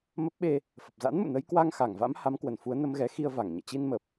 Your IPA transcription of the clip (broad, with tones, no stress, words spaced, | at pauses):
mə˦˥p̚ɓe˧ | fə˨˩p̚za̰˧˥nmṵ˧˨nə˨˦j kwa˧ŋxa˧˩ŋva̰˧˥m ha˨˦mkwə˧˩n fu˨˦ə̯nə˧mɣɛ˨˦xi˧ə̯ va˧˩ŋɲɛ̰˧˨ t͡ɕi˧nmə˨˩p̚